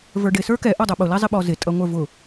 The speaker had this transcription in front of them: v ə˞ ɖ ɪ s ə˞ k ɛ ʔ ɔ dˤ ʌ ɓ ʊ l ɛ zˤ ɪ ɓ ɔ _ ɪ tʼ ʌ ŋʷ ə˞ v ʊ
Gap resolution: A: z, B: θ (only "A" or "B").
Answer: A